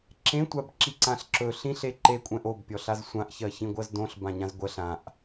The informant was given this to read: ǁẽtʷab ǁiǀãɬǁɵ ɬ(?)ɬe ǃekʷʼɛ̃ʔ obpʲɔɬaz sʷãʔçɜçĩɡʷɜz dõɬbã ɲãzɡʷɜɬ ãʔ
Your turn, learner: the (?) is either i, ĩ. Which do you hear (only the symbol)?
ĩ